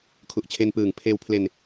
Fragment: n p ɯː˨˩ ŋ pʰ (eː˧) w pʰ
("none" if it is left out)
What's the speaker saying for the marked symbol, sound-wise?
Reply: eː˧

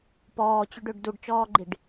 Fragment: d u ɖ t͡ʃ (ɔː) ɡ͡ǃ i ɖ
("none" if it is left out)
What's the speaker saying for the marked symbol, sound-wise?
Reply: ɔː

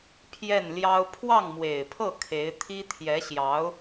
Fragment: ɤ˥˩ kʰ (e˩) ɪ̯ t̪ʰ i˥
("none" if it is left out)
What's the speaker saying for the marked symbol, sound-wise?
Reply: e˧˥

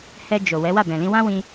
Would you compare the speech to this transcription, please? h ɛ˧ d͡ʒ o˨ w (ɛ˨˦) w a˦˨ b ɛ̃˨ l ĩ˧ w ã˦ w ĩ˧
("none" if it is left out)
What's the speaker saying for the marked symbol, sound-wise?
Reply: ɛ˨˦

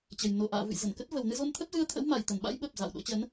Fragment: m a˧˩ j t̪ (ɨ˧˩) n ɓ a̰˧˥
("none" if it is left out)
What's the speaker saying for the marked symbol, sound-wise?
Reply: ə˧˩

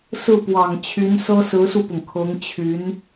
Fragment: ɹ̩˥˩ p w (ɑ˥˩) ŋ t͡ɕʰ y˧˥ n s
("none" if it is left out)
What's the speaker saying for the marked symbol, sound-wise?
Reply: ɑ˨˩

